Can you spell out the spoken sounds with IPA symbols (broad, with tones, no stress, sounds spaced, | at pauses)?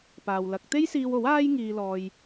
p aː˨ w l ɐ˨˥ k̚ t̪ e˥ j s iː˧ w o˨˥ w aː˥ j ŋ iː˧ l ɔː˧ j